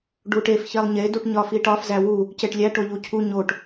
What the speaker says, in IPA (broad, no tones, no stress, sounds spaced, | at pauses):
ɖ u ʈ e f ç e lˠ ɲ e d u ʈ ɲ ɒ f i ʈ ɒ f z æ w u | c e ʈ lʲ æ ʈ o ʎ u cʰ u ɲ o ʈ